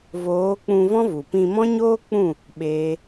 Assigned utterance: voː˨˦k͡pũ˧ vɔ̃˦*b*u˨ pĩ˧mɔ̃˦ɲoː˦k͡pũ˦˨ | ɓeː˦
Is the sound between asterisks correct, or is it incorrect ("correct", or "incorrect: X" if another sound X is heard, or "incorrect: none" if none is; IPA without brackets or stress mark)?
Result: incorrect: v